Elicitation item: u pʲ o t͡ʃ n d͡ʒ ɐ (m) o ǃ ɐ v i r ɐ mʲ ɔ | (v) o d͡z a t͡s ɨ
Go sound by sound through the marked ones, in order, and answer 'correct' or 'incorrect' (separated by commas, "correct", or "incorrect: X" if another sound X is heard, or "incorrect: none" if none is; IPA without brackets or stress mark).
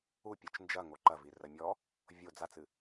incorrect: ŋ, incorrect: vʲ